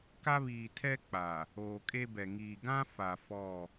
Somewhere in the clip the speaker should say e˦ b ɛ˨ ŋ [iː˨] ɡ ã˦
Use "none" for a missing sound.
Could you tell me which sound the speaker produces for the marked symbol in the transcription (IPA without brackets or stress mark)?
iː˨